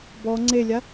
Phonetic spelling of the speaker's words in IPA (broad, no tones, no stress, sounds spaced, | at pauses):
b ɔ ŋ͡ǀ e lʲ a